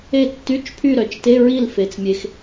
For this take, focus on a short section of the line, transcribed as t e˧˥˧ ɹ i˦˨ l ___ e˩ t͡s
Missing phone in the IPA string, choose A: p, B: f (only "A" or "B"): B